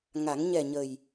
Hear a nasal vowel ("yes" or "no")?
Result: no